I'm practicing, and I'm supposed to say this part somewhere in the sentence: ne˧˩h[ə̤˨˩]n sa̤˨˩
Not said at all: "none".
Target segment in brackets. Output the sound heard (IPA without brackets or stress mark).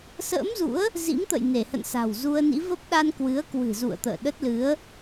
ə̰˧˨